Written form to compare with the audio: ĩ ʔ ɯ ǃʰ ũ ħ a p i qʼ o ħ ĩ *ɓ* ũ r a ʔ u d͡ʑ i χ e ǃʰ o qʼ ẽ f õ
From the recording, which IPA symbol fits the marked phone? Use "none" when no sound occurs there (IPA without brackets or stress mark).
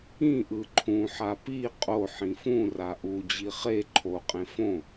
f